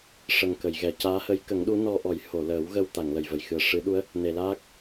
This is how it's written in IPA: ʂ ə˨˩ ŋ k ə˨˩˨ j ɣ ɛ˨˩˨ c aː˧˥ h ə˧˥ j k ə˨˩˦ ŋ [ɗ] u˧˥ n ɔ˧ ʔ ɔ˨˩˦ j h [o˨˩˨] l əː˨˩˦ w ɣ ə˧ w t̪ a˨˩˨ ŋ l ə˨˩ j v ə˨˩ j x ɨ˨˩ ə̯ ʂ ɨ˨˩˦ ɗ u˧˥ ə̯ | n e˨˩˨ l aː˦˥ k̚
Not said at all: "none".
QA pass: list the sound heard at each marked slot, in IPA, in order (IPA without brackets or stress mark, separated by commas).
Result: ɗ, o˨˩˨